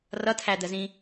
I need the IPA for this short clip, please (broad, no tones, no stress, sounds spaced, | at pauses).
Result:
r ʌ tʰ æ d̪ ə z ĩ